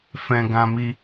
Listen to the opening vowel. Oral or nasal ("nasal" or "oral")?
nasal